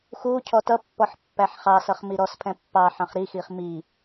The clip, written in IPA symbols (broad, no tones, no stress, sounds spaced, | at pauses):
x uː cʰ ɔ t ʌ pː ɔ ħ pː æ ħ χ ɑ s ʌ χ m i ɾ ɔ s pʰ ɛ̃ pː ɑ ħ ɑ̃ χ ɾ i x i χ m i